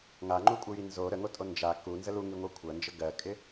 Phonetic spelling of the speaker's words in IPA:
ŋ a ŋ͡ǃ u kʷʼ ɜ j i n z o ɾ ə ŋ o tʼ o n d͡ʒ a k u n z ə l u ŋ i ŋʷ a kʷʰ ɜ n d͡ʒ ə ɡ ɜ kʼ ɪ

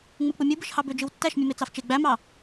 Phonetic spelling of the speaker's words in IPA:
ŋ͡m ɯ k͡p ɯ mʲ u b ɯ ʃ h ɑ b ø d͡ʒ ɯ w tː æ ʃ mʲ ɯ m e t͡s ɑ f t͡ʃ e ɡ͡b æ m ɑ

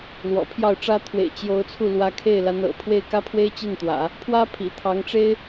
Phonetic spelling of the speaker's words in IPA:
l w ɔ̰˨˩ pʰ j ɑ˥˩ ʊ̯ ʈ͡ʂ ä˥ t̪ʰ w ḛ˨˩ ɪ̯ t͡ɕ j o˧˥ ʊ̯ t͡sʰ u˥˩ l w ä˧˥ kʰ e˥˩ ɪ̯ l a˧˥ n ɤ̰˨˩ pʰ w e˥˩ ɪ̯ k ä˥ pʰ w e˥ ɪ̯ t͡ɕ i˥˩ n t̪ w ä̰˨˩˦ | pʰ w ä˥ pʰ ḭ˨˩ t̪ʰ ɑ˧˥ ŋ ʈ͡ʂ e˥ ɪ̯

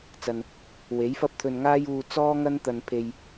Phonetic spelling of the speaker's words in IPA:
t͡s ɐ˨ n | w e˨˥ j f ɐ˥ p̚ t̪ʰ ɵ˧ n ŋ aː˥ j uː˧ t͡s ɔː˥ ŋ ɐ˥ n t̪ ɐ˨ n pʰ e˨ j

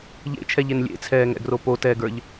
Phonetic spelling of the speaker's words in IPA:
ʎ ḛ t͡ʃʰ ɛ ʎ e n lʲ ḛ t͡sʰ ɛː ŋ ɛ̰ ɡ r o p o t ɛː ɡ ə˞ ʎ

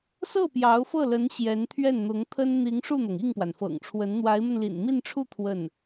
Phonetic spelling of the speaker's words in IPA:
s ɤ˥˩ p j ɑ˧˥ ʊ̯ f ɤ˥˩ l ə˧˥ n ɕ j ɛ˧˥ n t̪ʰ ɥ ɛ˥˩ n n̪ ʊ˧˥ ŋ t̪ʰ ə˥ n n̪ i˧˥ ŋ ʂ u˥˩ n̪ ɤ˩ ŋ i˥˩ ŋ p w a˩ n f ɤ̰˨˩ ŋ ʈ͡ʂʰ w ə˧˥ n n̪ w a˧˥ ɪ̯ m ə˧ n l ḭ˨˩ n m i˥˧ n ʈ͡ʂʰ u˥˧ t̪ʰ w ə˥˩ n

